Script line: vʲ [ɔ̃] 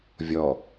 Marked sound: incorrect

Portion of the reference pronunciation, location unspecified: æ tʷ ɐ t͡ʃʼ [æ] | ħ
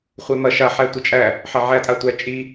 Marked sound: correct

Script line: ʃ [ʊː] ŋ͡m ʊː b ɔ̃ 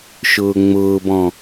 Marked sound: correct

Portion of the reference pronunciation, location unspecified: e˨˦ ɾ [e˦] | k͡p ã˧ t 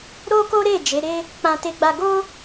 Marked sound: correct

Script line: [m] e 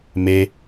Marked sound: correct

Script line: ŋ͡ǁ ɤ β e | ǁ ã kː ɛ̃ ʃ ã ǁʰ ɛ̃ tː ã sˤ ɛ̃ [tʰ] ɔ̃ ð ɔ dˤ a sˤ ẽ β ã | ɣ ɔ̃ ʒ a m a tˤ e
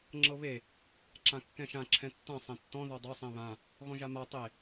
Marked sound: incorrect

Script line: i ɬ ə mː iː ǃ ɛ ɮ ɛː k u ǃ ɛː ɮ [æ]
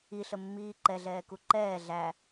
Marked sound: correct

